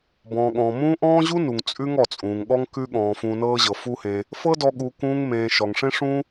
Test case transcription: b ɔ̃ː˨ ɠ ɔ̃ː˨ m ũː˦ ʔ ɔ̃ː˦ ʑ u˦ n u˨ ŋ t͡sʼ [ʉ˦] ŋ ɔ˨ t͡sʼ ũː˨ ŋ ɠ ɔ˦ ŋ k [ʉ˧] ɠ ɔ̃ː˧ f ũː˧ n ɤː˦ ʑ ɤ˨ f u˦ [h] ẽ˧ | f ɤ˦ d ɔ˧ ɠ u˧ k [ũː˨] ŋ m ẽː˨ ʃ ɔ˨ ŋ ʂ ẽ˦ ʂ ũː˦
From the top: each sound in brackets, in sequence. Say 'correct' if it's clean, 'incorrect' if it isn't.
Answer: correct, incorrect: ʉ˦, correct, incorrect: ũː˧

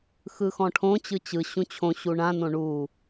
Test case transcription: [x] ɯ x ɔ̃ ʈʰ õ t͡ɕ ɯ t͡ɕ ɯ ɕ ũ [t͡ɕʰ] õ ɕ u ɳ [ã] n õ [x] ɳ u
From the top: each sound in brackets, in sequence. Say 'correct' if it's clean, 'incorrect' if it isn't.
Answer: correct, correct, correct, incorrect: none

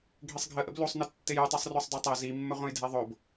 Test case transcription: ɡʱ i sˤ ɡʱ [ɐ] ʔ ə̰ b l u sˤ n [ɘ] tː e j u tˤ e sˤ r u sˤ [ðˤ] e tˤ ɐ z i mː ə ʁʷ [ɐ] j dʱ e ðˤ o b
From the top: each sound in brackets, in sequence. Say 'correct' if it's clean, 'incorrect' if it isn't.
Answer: incorrect: ə, correct, incorrect: dˤ, incorrect: ɐ̃

